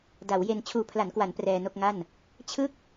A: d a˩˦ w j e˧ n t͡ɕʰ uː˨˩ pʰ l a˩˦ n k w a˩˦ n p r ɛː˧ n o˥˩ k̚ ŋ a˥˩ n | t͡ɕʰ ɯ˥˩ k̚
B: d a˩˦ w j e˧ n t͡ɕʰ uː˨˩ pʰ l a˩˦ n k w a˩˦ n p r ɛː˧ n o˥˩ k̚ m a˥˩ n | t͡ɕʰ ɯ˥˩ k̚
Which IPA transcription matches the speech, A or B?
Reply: A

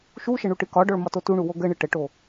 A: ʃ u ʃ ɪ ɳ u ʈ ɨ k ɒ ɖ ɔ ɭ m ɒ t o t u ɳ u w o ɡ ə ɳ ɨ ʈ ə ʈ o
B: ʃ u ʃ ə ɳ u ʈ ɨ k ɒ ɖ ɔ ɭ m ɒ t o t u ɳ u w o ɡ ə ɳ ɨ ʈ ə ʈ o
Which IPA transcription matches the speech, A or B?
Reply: B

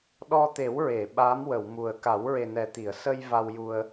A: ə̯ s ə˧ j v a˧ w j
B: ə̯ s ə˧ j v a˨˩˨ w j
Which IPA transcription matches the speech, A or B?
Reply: A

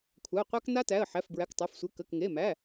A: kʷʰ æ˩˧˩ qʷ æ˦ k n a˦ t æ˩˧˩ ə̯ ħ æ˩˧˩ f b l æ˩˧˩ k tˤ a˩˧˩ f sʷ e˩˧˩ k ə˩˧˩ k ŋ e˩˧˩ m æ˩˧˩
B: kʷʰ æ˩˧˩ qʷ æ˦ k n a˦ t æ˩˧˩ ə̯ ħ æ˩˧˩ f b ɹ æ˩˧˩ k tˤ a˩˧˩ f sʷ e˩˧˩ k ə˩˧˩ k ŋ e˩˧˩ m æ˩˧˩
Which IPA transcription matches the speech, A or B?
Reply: B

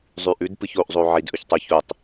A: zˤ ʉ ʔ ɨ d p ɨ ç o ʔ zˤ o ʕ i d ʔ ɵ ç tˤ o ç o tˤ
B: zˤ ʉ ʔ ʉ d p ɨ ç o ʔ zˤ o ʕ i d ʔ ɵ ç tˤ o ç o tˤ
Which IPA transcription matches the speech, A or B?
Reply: B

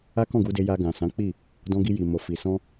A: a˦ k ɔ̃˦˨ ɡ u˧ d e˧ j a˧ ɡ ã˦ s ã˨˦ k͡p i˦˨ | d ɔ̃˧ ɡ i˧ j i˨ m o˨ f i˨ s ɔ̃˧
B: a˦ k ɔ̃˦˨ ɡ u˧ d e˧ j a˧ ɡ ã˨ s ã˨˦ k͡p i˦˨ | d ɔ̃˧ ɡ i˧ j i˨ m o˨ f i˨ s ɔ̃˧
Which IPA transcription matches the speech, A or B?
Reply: B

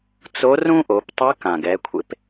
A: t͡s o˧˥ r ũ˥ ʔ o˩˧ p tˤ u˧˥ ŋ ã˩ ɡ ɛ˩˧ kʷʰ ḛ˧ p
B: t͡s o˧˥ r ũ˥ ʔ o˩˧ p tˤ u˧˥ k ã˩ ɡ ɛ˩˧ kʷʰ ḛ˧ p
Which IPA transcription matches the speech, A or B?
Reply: B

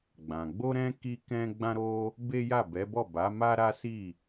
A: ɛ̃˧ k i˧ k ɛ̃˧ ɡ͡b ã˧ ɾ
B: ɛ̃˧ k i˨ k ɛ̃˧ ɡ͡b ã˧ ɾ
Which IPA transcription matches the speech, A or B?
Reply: A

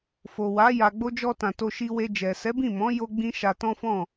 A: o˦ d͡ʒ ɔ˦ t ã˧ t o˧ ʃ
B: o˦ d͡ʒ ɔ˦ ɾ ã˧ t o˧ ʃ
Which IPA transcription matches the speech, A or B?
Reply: A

